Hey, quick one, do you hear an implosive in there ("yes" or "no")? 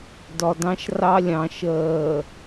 no